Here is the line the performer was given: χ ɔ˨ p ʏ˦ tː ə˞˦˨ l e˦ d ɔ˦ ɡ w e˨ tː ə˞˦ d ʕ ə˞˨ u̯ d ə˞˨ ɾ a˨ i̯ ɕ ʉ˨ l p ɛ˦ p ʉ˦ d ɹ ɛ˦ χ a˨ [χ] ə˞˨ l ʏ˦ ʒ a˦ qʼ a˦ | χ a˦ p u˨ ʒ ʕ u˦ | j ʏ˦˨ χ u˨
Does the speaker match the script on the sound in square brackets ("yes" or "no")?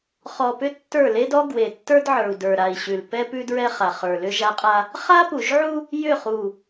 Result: yes